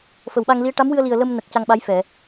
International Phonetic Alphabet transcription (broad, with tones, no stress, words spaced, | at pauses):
fə˨˩˨wɓa˧ŋli˧˥ə̯ ʈa˧˥mwɨ˧ə̯li˨˩ə̯ lə˧mnə˨˩k̚ ca˧ŋɓa˧˥jfɛ˨˩˨